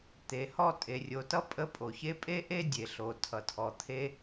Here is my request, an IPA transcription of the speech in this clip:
t̪ e˩ h ɔ˥ tʼ e˩ rʲ o˩ t ʌ˥ pʼ ə˥ pʼ o˩ ç e˥ pʼ e˥ ʔ e˥ dʲ e˩ ɬ o˩ tʰ ʌ˩ tʰ ɔ˩ t̪ʰ e˥

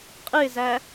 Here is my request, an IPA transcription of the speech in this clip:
qʼ ɨ ɪ̯ z æ

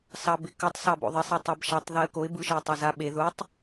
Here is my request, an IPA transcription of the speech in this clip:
s ɑ b ɪ k ɯ tˤ s ɑ b o̰ ðˤ ɪ sˤ e tˤ a b ʃ a tˤ ð e ə̯ k o ɪ̯ b ɯ ʃ ɪ ʊ̯ tˤ ɑ z a ɓ e ð ʊ tˤ

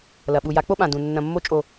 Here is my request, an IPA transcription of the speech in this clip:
l ɐ˨ ɓ u˨ j a˨˦ k͡p o˦ ɓ ã˨ d ũ˨ nː ɐ̃˨ mː o˧ t͡ʃʼ o˨

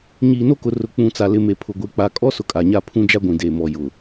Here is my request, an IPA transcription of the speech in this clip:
ɲ iː˨ n o˦ k ʊ˨ r ʊ˨ k͡p ũ˨ t͡s a˨ l ɪ˨ m e˨ pʰ ʊ˨ ɡʷ e˨˦ k͡p a˨ kʼ ɔ˦ s ʊ˨ kʼ a˨ ɲ a˦˨ pʰ ũ˦ d͡ʒ a˦ ɡʷ ĩ˨ d eː˨ m ɔ˨ j ʊ˨

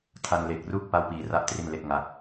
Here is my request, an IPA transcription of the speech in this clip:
tʰ a˧ n l e˨˩ k̚ r u˥˩ k̚ p a˥˩ w p iː˧ r a˥˩ ʔ t r i˥˩ n l e˥˩ k̚ ŋ a˦˥ k̚

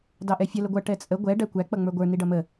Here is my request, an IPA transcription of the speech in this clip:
d ɑ ʔ ɛ fʲ ə l ə ɡʷ ʌ ʈ ɛ t͡sʼ ə ɡʷ ɛ ɖ æ kʷ æ k͡p ʌ ŋ͡m ə˞ ɡʷ ə˞ n i ɖ ʌ m ə

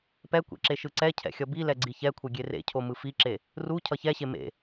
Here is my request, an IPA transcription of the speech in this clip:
p ɛ kʷ ɛ̰ ǁ e ʃ ɯ ǀ ɛ cʰ ɛ̰ xʲ ʌ b i l ɛ ɡ͡ǀ i ç ɛ kʷʰ ʌ ɡʲ e r ḛ cʰ o m ɯ f i ǁ e | r u cʰ ʌ ç ɛ ɕ e m ḛ

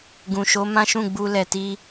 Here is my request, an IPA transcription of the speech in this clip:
ɡ ũ˨ ʃ o˨˦ m ã˦ ʃ ũ˦˨ ɡ͡b u˧ l ɛ˨ t i˧

